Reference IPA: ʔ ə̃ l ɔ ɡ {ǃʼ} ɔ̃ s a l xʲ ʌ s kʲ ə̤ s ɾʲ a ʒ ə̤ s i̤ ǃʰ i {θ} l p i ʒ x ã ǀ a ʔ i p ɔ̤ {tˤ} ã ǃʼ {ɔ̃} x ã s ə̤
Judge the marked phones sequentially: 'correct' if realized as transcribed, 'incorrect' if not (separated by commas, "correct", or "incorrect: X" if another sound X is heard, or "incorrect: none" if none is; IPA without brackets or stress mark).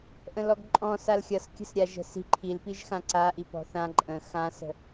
correct, incorrect: none, incorrect: θ, incorrect: ə̃